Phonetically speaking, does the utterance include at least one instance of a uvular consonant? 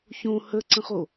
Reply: yes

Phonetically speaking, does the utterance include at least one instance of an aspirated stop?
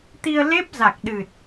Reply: no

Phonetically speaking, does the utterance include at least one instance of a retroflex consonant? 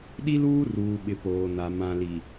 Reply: no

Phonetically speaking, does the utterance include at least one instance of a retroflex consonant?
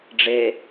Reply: yes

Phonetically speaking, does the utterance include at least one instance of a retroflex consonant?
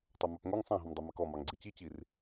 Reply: no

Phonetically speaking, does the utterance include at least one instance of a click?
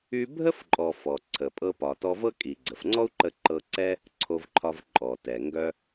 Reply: yes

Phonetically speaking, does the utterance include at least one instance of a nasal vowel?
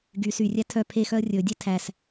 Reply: no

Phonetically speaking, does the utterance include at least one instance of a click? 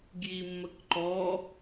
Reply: yes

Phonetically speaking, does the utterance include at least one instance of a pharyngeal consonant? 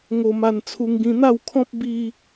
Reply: no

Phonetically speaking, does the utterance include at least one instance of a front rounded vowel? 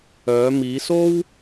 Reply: yes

